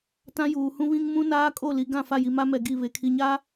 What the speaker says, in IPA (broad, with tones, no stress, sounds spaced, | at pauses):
t ã˦ j uː˨ h ũ˦ β ĩ˦ ŋ m ũ˦ n aː˦ kʼ o˦˨ l i˨ ɡ ã˦˨ f a˦˨ j i˨ m a˦ m ɛ˨ ɡ i˦˨ β e˨ kʰ i˨ ɲ a˦